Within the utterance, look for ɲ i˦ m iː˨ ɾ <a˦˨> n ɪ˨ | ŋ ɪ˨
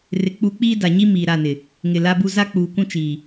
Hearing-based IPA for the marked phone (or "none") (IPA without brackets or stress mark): a˦˨